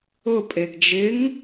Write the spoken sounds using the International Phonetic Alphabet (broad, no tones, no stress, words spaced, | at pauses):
ʊ pʼeɡd͡ʒɪŋ